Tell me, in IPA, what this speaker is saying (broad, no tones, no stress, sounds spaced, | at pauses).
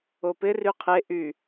o p ɪ r y qʰ e ʔ y